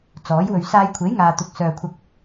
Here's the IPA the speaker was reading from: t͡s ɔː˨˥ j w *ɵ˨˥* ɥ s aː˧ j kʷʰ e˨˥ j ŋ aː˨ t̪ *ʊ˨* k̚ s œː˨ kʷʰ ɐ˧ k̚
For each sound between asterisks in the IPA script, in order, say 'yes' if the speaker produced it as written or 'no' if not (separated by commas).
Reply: no, yes